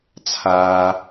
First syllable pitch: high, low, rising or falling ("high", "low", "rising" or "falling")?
high